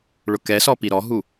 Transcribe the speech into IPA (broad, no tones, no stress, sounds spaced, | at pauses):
ɭ ʊ k ɛ s ɔ p i ɾ ɔ ɦ u